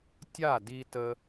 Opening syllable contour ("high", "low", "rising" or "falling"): falling